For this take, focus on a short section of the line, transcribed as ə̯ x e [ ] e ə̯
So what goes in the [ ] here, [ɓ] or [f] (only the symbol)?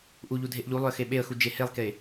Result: ɓ